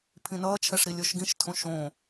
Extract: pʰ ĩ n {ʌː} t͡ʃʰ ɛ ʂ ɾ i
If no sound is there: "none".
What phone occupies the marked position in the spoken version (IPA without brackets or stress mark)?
ʌː